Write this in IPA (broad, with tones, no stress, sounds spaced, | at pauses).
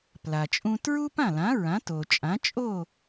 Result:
p l a˩ t͡ʃʼ ũ˧ t ɹ u˥ p ã˥˩ l ã˩˥ ɹ ã˩˥ t o˩ t͡ʃʼ ã˩˥ t͡ʃʼ o˥˩